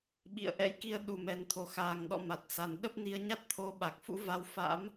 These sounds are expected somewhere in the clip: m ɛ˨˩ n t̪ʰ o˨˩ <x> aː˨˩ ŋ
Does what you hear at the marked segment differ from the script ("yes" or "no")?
no